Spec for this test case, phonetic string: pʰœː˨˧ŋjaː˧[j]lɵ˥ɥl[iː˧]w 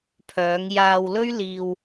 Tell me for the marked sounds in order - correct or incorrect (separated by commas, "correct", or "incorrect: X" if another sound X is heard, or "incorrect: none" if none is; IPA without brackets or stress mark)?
incorrect: w, correct